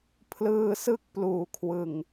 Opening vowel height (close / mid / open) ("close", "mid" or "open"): close